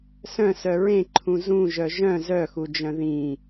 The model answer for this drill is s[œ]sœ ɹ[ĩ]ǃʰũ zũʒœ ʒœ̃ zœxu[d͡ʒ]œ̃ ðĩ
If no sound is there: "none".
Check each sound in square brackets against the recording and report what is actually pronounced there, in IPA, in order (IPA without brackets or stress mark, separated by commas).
œ̃, ẽ, d͡ʒ